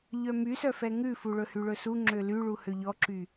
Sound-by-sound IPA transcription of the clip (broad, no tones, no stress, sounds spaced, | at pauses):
ʎ œ m y s œ f ɛ ŋ ʉ f u ɭ ɵ h y ɭ ɵ s u ŋ͡ǁ ø l y ɭ u h ø ʎ ɔ ǁ y